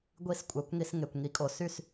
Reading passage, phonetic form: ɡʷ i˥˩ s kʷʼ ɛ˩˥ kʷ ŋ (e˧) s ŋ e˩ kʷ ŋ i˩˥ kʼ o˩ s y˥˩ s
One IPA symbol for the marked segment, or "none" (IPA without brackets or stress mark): i˧